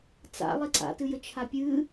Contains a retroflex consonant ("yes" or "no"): no